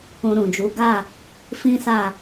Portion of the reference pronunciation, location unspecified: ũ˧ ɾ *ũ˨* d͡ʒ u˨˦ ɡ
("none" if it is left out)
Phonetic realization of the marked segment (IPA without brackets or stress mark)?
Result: ũ˨